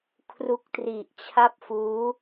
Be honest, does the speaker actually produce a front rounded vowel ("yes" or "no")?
no